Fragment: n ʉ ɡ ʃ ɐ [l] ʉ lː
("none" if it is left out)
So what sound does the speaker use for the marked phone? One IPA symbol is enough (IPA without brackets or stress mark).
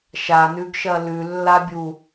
l